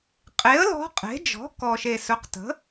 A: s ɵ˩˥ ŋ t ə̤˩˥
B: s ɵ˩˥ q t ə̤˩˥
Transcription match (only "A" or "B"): B